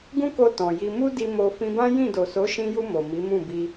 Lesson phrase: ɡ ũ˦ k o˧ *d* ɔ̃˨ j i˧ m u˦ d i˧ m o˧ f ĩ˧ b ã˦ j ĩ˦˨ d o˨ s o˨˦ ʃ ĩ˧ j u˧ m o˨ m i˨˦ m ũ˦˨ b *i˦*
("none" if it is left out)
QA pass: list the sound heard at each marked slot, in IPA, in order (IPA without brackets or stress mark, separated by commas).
t, i˧